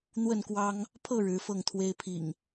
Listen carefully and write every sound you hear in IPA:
n̪ w ə˥˨ n k w ɑ˦ ŋ | pʰ ɤ˥˨ ɻ ɻ̩˨˦ f ɤ˥˨ ŋ t̪ʰ w e˦ ɪ̯ pʰ ḭ˨˩ ŋ

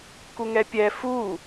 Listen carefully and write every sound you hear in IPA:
k u ŋ ɛ pʲ ɛ f u

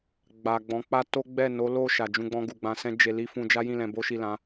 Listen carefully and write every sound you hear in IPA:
ɡ͡b a˨ ɡ͡b ɔ̃˨˦ k͡p a˦ t o˦ ɡ͡b ɛ˦˨ n o˨˦ l o˦˨ ʃ a˨ d͡ʒ ũ˧ ɡ͡b ɔ̃˧ ɡ u˨ ɡ͡b ã˧ s ɛ̃˦ d͡ʒ e˧ l i˦ f ũ˧ d͡ʒ a˦ j ĩ˦˨ l ɛ̃˧ b o˦ ʃ i˦˨ l ã˨˦

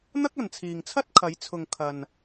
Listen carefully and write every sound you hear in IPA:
n̪ ɐ˥ k̚ ɐ˨ n t͡sʰ iː˨ ŋ t͡sʰ ɐ˥ t̚ kʰ ɐ˨˧ j t͡sʰ ʊ˨ ŋ kʰ ɐ˨ n

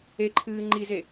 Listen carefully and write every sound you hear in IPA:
e ǃʰ ɨː ŋ͡ǃ i z e

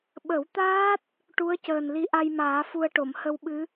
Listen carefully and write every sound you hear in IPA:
ɓ ə˨˩˦ w t̪ aː˦˥ t̚ | ʈ u˧˥ ə̯ c əː˨˩ n l i˧˥ ʔ a˧ j m aː˨˩˦ f u˧ ə̯ ʈ o˨˩˨ m h ə˧ w ɓ ɨ˧˥

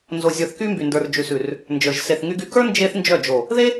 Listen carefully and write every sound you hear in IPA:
n z o˧ zʲ ə˞˧ θ k y˦ m b y˨ n d ə˞˨ r d͡ʒ ʉ˨ s ʉ˨ r | n d͡ʒ ə˞˨ ʒ s e˨ θ ŋ y˧ ɡ y˧ k ə˞˦ n d͡ʒ e˦ θ n d͡ʒ œ˦˨ d͡ʒ o˨ | ð e˦

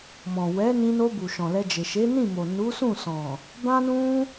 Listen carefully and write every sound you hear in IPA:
m ɔ̃˨ w ɛ˨˦ n ĩ˧ n o˧ b u˨ ʃ ɔ̃˨ l ɛ˧ d͡ʒ e˨ ʃ e˨˦ n ĩ˦˨ m o˨ n u˨˦ s ũ˦˨ s ɔ̃˨ | b ã˦ n ũ˦

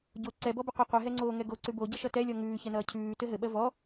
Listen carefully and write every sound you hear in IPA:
ɟ o ǀ ɛ b ɔ b ɘ qʷ ʌ qʷ ɘ ɦ ɛ ŋ͡ǀ oː ŋ ɛ ɡ o ǀ ʉ b o ɟ ʌ ʃ ʌ t ɛ lʲ ɔ ŋ ʉː ç ɛ n ʌː cʰ ʉː t ɘ ɦ ɘ ɓ ɜ v ɔ

